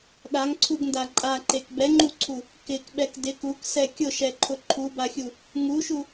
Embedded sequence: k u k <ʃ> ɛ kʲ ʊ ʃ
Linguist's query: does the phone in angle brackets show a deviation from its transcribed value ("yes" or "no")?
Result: yes